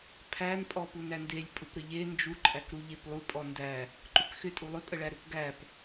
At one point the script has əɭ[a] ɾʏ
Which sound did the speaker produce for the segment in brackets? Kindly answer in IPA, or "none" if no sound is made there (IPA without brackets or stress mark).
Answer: æ